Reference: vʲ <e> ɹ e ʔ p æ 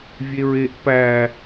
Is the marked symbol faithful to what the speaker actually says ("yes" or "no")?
yes